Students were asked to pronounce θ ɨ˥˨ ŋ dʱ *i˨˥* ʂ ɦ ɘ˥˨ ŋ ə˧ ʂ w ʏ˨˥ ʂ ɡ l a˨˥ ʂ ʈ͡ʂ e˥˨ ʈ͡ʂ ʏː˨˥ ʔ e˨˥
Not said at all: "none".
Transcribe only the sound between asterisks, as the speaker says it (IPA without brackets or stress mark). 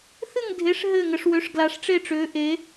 e˨˥